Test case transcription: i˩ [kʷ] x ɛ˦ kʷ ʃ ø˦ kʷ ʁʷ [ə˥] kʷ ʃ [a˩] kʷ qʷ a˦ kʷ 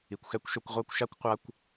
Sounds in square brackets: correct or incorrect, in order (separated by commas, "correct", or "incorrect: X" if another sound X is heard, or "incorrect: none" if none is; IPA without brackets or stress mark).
correct, incorrect: a˥, incorrect: a˥